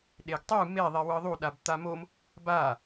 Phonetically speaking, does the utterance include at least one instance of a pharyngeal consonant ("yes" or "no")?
no